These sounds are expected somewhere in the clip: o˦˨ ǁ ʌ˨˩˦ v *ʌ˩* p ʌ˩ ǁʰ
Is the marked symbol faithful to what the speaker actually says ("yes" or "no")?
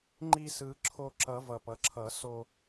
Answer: yes